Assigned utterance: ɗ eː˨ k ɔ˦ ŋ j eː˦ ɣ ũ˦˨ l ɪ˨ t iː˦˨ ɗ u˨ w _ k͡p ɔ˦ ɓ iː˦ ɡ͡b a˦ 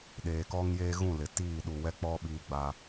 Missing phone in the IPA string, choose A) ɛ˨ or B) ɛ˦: B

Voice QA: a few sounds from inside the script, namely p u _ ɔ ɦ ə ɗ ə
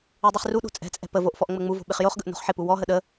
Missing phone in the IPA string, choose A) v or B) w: B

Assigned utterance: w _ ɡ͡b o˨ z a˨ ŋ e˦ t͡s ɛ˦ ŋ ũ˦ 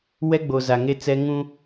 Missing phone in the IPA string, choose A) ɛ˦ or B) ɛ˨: A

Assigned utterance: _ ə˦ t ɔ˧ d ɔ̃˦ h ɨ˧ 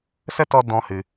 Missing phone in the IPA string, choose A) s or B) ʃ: A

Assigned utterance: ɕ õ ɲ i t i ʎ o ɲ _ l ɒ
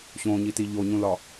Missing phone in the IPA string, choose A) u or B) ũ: B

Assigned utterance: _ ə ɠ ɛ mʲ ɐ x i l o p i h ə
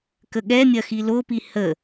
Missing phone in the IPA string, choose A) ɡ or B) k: B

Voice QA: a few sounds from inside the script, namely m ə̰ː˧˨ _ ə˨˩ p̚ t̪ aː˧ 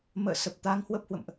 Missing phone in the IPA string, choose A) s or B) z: A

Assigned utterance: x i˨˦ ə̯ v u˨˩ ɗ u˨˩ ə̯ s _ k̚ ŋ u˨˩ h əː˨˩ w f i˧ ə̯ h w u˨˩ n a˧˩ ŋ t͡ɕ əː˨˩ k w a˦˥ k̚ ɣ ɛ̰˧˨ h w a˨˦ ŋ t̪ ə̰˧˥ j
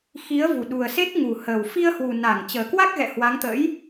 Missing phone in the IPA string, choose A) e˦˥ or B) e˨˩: A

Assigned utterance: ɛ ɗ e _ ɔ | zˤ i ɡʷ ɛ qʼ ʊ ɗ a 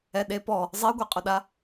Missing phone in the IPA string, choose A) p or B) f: A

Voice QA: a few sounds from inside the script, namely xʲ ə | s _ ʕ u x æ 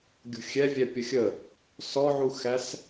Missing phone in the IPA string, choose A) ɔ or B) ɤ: A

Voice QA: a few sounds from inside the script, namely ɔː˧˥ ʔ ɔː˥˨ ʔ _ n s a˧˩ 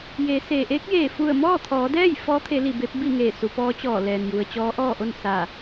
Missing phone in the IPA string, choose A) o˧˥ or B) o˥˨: B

